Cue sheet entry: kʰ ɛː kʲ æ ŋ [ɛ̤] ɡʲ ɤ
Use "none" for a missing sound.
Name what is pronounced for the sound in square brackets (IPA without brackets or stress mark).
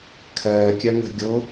ɛ̤